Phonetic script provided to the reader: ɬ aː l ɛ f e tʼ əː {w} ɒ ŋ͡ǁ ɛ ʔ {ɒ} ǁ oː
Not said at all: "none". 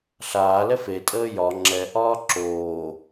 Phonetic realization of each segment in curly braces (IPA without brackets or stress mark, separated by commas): j, ɒː